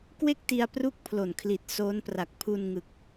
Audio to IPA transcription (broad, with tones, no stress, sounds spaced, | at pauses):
k w e˥˩ k̚ t i˧ a̯ p r u˥˩ k̚ pʰ l o˨˩ n kʰ l i˨˩ t̚ s oː˦˥ n p r a˨˩ k̚ pʰ u˧ n ŋ ɯ˨˩ k̚